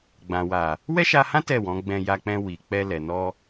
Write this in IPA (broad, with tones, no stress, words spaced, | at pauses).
ɡ͡bã˨wa˨ | wɛ˦ʃa˧hã˦ tɛ˦˨wɔ̃˨˦ ɡ͡bɛ̃˧ ja˧k͡pɛ̃˧ wi˨ k͡pɛ˧lɛ˨nɔ˧